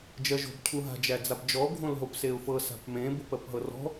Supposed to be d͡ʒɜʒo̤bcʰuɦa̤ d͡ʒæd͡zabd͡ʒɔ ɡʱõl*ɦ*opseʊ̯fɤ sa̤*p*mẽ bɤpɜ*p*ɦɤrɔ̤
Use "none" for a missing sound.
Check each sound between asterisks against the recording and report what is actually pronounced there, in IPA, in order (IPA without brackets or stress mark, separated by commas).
ɦ, p, p